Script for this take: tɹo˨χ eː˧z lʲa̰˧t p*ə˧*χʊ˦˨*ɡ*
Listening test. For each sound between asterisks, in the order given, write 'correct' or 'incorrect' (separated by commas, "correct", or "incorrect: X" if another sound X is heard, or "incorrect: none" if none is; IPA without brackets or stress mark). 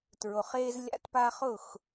incorrect: a˧, incorrect: x